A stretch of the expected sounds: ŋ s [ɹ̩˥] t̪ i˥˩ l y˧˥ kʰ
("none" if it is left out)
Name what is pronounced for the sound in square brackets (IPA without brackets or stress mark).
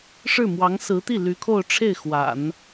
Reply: ɹ̩˧˥